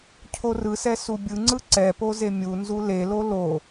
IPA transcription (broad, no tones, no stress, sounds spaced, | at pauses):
cʰ o r ɯ s ɛ s u bʲ ɯ ŋ͡ǀ ɯ ǀ ɛ p o z e mʲ u n z u l e l o l o